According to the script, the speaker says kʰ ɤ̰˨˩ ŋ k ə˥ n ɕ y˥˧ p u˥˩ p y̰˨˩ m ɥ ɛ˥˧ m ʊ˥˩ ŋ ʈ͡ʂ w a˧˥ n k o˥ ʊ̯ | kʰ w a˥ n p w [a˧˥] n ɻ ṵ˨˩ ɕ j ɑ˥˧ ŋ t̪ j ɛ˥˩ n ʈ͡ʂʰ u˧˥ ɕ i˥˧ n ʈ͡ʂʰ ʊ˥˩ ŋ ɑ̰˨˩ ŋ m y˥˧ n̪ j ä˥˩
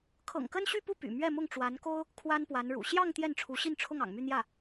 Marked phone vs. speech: correct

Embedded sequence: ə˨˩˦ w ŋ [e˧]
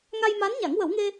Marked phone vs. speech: correct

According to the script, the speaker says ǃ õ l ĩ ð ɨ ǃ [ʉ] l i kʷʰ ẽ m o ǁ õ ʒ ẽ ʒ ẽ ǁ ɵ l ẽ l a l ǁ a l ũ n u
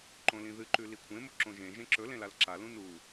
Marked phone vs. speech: correct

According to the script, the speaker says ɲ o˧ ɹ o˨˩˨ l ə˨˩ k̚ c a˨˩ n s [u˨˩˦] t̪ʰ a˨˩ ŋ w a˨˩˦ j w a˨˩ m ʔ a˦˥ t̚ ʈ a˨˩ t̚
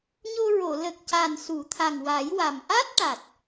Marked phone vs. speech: correct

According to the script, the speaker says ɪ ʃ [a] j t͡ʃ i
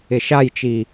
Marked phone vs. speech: correct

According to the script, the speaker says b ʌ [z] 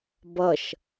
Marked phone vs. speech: incorrect: ʃ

